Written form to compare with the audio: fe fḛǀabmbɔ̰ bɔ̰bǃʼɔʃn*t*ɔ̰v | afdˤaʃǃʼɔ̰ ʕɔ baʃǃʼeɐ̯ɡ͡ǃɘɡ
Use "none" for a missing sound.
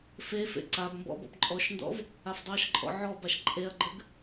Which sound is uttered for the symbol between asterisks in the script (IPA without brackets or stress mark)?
d